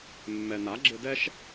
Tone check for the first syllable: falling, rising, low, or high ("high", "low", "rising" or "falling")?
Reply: low